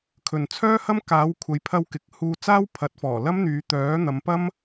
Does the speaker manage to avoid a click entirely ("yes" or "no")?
yes